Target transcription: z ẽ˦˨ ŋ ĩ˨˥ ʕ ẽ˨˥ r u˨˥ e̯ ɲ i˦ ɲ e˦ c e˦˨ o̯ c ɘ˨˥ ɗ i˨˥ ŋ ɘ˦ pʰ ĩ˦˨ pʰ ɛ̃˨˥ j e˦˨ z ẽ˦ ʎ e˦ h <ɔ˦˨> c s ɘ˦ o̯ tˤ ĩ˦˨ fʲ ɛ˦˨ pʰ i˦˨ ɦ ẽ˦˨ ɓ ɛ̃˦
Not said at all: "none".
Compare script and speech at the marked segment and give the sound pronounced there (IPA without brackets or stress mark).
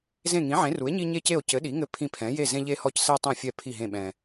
ɔ˦˨